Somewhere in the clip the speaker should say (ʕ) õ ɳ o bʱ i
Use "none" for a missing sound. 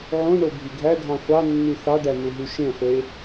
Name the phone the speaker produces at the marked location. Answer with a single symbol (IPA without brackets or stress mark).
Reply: ʕ